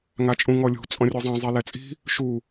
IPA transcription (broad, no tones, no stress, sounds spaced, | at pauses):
ŋ a t͡ʃʼ ũ ŋ ɔ lʲ ṳ t͡sʼ ɔ̃ rʲ u zˤ ẽ zˤ i l ɛ t͡sʼ i̤ | ʃ u